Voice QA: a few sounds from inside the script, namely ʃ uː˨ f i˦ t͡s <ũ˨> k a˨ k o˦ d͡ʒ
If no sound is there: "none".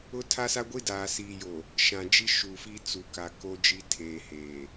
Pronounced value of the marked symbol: u˨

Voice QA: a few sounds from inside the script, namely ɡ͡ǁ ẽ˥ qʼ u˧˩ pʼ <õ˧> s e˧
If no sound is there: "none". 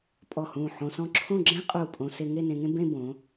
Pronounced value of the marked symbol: õ˧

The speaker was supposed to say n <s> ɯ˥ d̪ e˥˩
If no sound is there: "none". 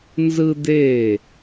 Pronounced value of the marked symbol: z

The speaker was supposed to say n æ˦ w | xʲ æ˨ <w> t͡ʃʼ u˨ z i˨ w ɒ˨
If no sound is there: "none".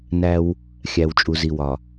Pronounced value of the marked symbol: w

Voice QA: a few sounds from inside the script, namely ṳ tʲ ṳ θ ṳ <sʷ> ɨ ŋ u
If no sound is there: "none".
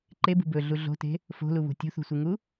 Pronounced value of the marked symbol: sʷ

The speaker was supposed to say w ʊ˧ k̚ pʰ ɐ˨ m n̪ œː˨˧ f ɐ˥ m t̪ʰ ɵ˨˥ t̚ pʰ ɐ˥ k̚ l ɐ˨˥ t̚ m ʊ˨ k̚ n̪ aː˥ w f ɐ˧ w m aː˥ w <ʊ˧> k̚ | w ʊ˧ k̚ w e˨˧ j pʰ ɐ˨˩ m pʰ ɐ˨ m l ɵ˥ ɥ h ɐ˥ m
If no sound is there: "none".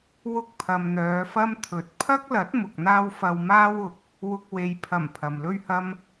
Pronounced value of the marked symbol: ʊ˧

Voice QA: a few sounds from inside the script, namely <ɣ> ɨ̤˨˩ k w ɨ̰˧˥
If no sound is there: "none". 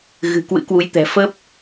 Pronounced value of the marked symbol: ɣ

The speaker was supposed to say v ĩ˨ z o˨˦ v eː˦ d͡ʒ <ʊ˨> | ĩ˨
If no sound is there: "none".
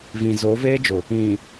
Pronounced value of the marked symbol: ʊ˨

